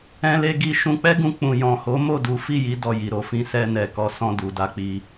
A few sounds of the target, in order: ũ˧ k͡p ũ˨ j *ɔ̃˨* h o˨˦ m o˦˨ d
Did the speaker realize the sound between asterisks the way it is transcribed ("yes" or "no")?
yes